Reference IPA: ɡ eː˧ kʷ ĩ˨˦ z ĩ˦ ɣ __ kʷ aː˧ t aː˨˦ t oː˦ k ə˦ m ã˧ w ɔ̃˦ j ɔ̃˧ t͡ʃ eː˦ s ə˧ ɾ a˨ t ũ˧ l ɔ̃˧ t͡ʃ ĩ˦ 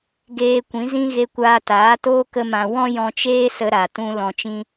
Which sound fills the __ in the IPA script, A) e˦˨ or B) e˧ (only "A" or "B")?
B